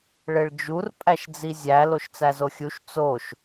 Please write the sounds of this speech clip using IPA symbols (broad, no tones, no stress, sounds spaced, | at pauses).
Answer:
ɭ e ɭ d͡ʒ u r pʼ æ ʃ d͡z i zʲ æ l o ʃ t͡s æ z o xʲ u ʃ t͡s o ʃ